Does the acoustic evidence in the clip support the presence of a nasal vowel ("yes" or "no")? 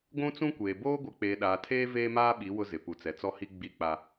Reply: yes